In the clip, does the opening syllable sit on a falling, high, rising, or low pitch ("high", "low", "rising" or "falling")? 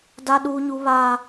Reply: high